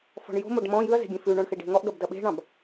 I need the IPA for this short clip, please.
fɔ̤ɳjo̤moɖ mɔ̃ jʉɐ̯ze̤ ɡʲẽfʉɳɔ̃ɳ xeɖe̤ŋɔʔɡɐb dɐɓe̤ɳɑ̃b

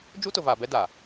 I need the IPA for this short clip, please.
d͡ʒu˦tʊ˨vaː˨ bɛ˦da˨

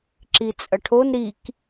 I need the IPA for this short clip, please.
ǁit͡sʼɐʈʰon ɾik

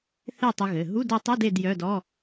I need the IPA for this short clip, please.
θe˥˨tˤɘ˧ɣɘ˩˧˩ ɦu˧˥˧do˧tˤɐ˧˥˧d e˥˨djœ˧˥˧dɔ˧˥˧

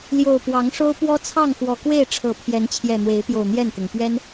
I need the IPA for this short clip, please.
ljo˨˩ʊ̯pwɑ˨˦ŋʂo˦ʊ̯pwɔ˦ t͡sʰɑ˥˨ŋxwɔ˨˩kwe˥˨ɪ̯ ʈ͡ʂʰɤ˨˩ pʰjɛ˨˦nt͡ɕʰjɛ˨˩n̪we˨˦ɪ̯pjo˨˩ʊ̯ n̪jɛ˥˨nt̪ʊ˩ŋ pɥɛ˦n

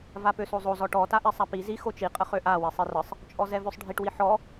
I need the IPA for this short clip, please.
vapøsozˤo zɔʈɔ taʔɛsˤapi zi xot͡ʃi qʼəχøʔa wisˤirəsˤ | t͡ʃʼɔzɛvøsˤɖʱiʈ wiħɔ

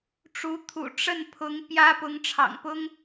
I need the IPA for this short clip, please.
ʈ͡ʂu˧˥t̪ʰṵ˨˩ ʈ͡ʂə˥˩npʰʊ˧˥ŋ pjä˥ pʊ˧˥ŋʈ͡ʂʰɑ̰˨˩ŋpʊ˥ŋ

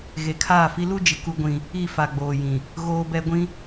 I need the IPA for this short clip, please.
ɣe˨kʰaː˦˨fi˦ lu˦d͡ʒɪ˨ ku˦ɡʷĩ˦ | i˦˨fa˨ɡ͡boː˨jĩ˨ | ɣoː˦bɛ˦ɡʷĩ˦

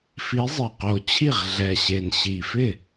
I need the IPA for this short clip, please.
fi˨˥zˤɪ˨˩qo˨˩t͡ɕʰi˥˩ʁ ɮɛ˨˩ɕe˨˩nɕi˨˩fɪ˥˩

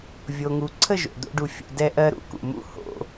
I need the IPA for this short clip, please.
vʲo˨ŋu˨ ǀʰə˦˨ʒo̰˨ d̪o̰˦ɖu˧ fʲṵ˨ dɛ˧ʔɜ˧ɾṵ˧kṵ˨ mṵ˦ ho̰˧

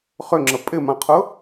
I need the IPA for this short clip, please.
χʏŋ͡ǁə pʼɪmãqʰʊ

